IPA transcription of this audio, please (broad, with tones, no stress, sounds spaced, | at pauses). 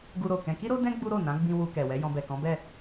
ɡ u˧ ɾ o˨ k ɛ̃˧ k i˦ ɾ o˦ d ɛ̃˦ ɡ͡b u˦ ɾ o˦˨ n ã˨˦ ɡ͡b ĩ˧ w u˧ k ɛ˨ w ɛ˨˦ j ɔ̃˧ b ɛ˨ k ɔ̃˨˦ b ɛ˦˨